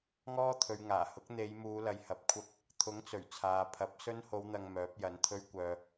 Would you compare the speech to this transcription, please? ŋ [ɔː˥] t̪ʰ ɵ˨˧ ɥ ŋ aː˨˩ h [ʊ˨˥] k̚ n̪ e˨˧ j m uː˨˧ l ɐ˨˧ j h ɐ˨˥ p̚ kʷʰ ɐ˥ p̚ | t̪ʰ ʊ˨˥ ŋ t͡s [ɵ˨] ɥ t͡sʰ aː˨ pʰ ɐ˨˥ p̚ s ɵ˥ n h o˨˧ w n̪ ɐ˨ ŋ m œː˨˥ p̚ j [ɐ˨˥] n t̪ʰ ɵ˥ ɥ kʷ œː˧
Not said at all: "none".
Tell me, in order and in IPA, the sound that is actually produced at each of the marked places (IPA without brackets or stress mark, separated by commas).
ɔː˥, ʊ˨˥, ɵ˨˩, ɐ˨˥